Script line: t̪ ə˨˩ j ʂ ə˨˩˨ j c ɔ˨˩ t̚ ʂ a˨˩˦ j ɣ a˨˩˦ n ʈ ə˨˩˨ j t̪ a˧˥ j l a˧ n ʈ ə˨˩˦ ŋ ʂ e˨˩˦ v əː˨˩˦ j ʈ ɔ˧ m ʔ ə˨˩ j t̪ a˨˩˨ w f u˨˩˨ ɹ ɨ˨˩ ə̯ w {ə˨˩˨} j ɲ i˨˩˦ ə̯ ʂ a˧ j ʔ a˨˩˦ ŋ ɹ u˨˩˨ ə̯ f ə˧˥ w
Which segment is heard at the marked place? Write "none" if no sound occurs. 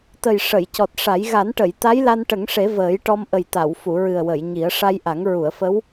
ə˨˩˨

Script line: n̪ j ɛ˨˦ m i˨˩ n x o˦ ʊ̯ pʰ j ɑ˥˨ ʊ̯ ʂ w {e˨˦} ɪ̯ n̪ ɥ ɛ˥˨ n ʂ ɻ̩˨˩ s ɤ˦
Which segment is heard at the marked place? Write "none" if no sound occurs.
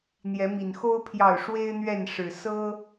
e˦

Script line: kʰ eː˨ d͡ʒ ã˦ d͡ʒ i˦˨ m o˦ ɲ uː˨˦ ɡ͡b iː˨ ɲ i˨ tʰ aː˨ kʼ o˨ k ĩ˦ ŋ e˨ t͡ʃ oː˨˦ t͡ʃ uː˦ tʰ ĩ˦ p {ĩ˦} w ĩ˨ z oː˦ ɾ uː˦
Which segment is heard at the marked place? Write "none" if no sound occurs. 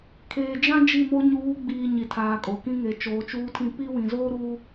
i˦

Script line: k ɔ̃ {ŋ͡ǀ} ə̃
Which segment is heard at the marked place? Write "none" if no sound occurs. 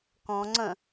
ŋ͡ǀ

